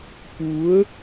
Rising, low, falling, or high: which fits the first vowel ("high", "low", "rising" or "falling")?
rising